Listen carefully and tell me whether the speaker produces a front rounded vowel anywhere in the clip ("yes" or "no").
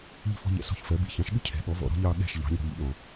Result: no